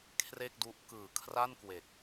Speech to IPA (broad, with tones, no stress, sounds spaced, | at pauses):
kʰ r e˥˩ k̚ d u˦˥ ʔ k ɯː˨˩ kʰ r a˥˩ n k w e˨˩ k̚